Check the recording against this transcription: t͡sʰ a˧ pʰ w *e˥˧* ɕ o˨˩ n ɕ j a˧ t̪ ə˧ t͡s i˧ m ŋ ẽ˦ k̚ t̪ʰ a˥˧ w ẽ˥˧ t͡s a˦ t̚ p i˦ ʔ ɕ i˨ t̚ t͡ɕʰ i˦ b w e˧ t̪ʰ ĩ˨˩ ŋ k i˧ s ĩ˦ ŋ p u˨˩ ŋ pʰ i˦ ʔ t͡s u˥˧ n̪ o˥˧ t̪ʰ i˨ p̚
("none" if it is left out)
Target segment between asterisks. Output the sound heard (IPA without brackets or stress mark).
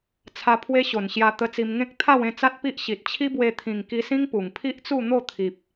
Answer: e˦